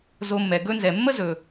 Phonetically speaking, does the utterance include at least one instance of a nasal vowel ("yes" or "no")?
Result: no